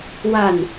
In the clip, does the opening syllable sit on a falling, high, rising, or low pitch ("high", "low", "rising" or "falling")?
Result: falling